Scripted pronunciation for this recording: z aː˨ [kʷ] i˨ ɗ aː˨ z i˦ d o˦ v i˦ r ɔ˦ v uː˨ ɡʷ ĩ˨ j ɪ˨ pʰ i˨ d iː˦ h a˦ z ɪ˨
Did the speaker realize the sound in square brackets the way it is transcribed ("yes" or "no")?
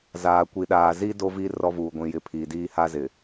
yes